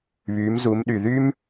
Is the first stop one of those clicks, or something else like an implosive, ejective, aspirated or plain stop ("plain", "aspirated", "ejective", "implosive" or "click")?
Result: implosive